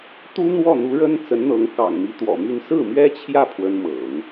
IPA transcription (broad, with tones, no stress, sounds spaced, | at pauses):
t̪ u˥ n̪ w ɔ˥˩ n̪ u˧˥ ɻ ə˥ n t͡s ə˧˥ n n̪ ɤ˧˥ ŋ k ɑ̰˨˩ ŋ m i˧˥ t̪ w ɔ̰˨˩ m y˥˧ n s ɹ̩˥˩ m ɥ ɛ˥ t͡ɕʰ j ä˥˩ pʰ w ə˥ n m ɤ̰˨˩˦ ŋ